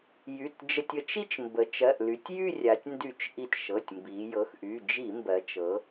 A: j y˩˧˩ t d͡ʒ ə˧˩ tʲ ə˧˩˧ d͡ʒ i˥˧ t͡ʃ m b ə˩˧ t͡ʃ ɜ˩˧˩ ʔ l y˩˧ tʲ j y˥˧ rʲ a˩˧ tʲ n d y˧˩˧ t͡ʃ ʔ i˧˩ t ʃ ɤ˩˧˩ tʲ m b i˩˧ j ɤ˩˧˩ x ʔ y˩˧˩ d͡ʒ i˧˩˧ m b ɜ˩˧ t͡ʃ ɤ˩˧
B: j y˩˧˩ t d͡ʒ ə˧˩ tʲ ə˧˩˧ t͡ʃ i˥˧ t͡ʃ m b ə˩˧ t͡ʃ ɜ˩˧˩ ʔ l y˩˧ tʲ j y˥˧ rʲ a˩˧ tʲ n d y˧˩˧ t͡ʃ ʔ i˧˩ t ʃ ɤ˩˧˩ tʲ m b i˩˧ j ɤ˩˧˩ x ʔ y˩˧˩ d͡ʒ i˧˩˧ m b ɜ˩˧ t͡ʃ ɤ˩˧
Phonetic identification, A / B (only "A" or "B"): B